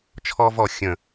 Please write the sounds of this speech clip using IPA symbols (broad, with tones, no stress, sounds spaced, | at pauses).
t͡ʃʰ ɔ˧ v ɔ˨ xʲ ə̃˨